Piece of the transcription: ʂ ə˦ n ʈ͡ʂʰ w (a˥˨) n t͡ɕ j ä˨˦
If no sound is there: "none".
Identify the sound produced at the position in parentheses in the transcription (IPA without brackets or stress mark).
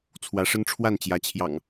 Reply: a˥˨